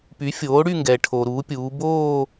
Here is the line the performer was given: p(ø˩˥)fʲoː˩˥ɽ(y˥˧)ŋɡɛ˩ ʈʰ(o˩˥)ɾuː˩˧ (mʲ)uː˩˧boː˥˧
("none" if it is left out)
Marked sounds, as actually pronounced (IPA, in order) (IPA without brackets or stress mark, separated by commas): y˩˥, y˥˧, o˩, pʲ